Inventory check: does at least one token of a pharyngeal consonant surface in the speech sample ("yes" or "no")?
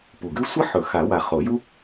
yes